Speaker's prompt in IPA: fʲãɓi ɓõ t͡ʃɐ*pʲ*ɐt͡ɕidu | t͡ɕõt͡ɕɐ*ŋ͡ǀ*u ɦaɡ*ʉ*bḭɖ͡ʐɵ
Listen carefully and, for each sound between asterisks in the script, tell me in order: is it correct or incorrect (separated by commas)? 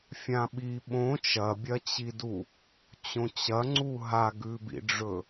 incorrect, correct, correct